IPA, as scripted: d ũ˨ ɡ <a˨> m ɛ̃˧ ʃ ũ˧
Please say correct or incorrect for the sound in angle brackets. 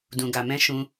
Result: correct